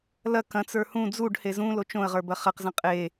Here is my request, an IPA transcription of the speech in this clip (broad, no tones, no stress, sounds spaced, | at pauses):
l ɐ k ɐ̃ t͡s ə˞ h ũ d͡z u ɖ h e z ũ l o t͡ʃ õ ə̯ ʁ ə˞ b ɐ χ ɐ q z ɐ̃ qʼ e